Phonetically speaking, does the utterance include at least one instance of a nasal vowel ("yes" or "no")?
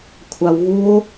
no